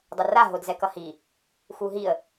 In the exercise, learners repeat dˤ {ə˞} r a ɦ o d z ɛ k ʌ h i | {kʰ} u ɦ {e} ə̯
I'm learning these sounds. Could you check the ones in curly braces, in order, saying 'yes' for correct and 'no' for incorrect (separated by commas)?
no, no, no